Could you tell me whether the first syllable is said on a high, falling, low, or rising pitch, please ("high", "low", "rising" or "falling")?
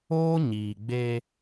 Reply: high